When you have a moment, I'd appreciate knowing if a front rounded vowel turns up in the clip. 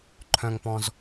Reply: yes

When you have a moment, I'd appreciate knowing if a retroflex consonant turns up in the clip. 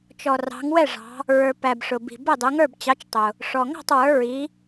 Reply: yes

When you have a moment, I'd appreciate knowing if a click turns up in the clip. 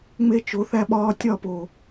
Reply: no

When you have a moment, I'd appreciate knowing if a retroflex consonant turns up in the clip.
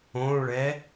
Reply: yes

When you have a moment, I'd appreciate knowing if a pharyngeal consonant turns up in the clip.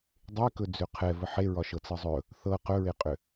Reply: yes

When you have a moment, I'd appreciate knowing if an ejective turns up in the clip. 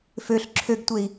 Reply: no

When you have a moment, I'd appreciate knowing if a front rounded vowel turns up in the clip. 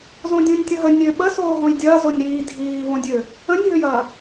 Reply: yes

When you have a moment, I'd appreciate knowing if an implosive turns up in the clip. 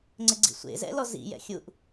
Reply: no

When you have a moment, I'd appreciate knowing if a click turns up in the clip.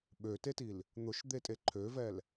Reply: yes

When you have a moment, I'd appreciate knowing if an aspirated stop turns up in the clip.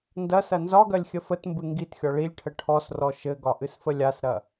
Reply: yes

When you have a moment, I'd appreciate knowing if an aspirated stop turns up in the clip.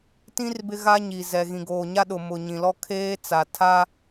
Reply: yes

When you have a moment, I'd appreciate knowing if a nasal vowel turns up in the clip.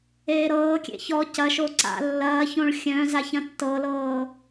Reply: yes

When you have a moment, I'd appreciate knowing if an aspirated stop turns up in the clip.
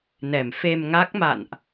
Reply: no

